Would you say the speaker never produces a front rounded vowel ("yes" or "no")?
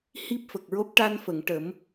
yes